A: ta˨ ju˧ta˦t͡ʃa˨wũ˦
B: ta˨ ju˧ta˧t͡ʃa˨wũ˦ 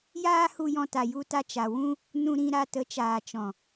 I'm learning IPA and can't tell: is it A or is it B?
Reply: B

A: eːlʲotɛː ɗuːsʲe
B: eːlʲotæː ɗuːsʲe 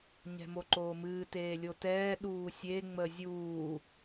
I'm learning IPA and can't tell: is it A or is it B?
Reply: A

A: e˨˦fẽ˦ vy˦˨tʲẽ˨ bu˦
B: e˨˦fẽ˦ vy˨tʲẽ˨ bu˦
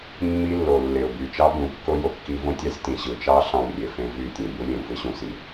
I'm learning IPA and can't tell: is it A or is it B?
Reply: A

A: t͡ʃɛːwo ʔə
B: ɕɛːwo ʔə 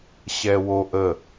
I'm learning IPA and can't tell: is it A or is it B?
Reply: B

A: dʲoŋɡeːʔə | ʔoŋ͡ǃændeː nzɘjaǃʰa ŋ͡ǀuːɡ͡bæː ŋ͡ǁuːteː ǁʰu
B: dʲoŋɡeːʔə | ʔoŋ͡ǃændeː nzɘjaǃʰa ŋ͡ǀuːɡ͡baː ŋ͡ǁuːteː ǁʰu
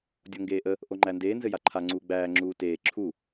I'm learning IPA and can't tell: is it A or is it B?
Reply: A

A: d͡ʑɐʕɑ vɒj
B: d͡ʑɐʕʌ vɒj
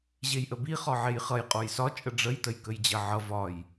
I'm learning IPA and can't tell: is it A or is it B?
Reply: B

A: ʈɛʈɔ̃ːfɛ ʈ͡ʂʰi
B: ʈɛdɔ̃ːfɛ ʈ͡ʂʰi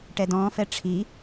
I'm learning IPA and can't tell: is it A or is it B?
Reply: B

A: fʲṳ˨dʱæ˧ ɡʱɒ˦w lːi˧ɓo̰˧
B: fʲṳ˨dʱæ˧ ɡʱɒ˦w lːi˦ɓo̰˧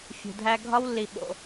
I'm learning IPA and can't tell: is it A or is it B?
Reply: A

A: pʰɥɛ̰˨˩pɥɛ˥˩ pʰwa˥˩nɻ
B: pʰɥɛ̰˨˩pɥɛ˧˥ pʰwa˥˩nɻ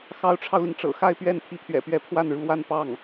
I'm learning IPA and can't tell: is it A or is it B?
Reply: B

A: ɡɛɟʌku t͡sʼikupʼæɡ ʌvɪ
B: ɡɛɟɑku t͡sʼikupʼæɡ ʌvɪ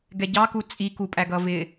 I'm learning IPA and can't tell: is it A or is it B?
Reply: B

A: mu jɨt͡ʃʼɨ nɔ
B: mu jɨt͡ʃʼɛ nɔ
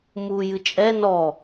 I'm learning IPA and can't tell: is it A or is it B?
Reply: B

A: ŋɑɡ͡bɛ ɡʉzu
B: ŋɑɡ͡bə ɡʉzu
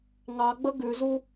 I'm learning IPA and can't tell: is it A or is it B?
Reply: B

